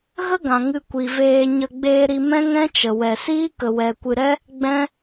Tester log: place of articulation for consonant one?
velar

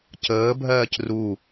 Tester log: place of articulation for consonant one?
palatal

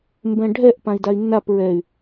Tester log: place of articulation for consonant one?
labial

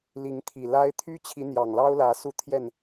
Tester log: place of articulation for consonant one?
alveolar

